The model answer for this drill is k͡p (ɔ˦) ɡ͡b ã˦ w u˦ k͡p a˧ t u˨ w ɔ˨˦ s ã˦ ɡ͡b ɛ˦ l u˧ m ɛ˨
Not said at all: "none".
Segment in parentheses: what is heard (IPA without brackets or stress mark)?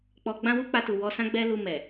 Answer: ɔ˧